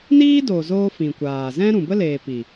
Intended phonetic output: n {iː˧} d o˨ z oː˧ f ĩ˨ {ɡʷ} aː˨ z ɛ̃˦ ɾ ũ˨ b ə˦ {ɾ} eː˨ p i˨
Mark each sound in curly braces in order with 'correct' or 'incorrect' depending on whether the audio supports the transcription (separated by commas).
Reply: incorrect, incorrect, incorrect